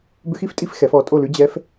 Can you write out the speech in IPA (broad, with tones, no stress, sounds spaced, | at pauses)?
b ʏ˧˥˧ x i˥˧ f tʼ i˧˥˧ f x ɛ˨˦ f ɔ˨˦ tʼ o˥˧ l ʉ˦˥ d͡ʑ ɛ˦˥ f